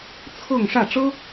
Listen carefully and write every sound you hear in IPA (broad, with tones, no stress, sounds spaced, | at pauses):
t͡sʰ ɤ˥˧ ŋ ʂ ä˥˩ ʈ͡ʂ ɤ˥